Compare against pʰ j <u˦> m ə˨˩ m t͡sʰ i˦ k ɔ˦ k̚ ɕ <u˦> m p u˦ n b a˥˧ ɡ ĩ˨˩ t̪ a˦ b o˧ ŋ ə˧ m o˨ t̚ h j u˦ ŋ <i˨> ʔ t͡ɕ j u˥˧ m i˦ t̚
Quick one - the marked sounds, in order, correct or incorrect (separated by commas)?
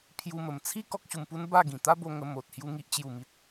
incorrect, incorrect, incorrect